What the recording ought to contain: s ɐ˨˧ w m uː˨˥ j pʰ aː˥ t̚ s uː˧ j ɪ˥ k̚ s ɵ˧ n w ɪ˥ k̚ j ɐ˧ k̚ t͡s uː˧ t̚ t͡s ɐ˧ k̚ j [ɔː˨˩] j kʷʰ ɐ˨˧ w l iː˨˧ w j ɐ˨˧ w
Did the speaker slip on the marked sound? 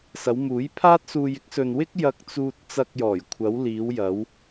no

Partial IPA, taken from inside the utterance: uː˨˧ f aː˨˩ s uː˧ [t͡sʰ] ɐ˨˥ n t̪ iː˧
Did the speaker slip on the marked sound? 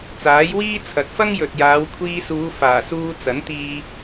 yes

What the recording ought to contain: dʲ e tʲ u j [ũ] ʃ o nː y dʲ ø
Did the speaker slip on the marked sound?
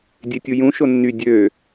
no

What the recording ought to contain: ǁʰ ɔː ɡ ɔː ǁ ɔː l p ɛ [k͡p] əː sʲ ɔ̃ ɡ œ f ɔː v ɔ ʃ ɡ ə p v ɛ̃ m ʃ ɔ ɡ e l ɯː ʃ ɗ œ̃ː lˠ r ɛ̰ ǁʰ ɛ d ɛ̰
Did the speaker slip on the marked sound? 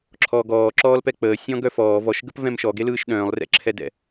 no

